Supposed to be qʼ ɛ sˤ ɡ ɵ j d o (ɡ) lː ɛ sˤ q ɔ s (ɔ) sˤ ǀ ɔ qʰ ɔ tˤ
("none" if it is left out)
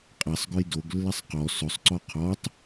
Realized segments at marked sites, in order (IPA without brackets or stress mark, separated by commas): ɡ, ɵ